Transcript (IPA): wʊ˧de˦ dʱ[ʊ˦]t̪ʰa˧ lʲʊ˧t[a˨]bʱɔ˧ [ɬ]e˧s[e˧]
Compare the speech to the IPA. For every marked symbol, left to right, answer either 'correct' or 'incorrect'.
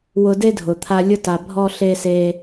incorrect: ʊ˨, correct, correct, correct

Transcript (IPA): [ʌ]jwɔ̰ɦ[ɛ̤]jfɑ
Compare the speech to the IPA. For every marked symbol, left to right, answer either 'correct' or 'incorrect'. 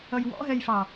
correct, incorrect: ɛ

